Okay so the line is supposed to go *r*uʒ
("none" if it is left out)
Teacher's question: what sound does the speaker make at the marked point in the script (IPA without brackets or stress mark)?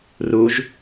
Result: r